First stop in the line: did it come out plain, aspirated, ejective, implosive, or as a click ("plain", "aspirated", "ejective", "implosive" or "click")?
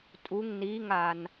ejective